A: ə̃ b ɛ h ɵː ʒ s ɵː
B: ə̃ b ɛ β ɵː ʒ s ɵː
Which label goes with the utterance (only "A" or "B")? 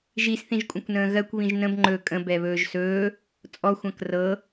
B